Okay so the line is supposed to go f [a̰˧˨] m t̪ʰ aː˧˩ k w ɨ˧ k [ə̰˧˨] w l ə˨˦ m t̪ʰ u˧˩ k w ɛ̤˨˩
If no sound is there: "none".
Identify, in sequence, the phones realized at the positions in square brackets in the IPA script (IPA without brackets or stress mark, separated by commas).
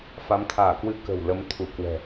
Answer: a˨˦, ə̤˨˩